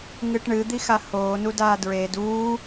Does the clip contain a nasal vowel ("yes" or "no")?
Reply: no